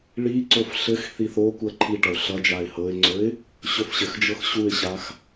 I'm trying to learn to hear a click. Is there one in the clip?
yes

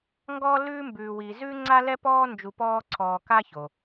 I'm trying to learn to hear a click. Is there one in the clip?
yes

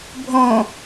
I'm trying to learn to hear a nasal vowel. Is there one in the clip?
yes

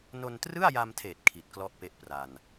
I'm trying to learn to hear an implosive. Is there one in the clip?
no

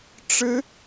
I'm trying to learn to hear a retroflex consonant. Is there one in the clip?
yes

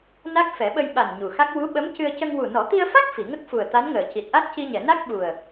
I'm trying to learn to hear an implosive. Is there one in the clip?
yes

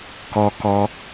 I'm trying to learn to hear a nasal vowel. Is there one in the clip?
no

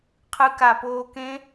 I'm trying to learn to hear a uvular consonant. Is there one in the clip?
yes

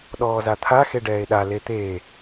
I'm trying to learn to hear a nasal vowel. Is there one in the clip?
no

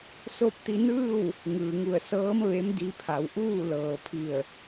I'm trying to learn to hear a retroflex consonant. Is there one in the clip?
no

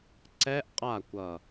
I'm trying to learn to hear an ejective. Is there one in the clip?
yes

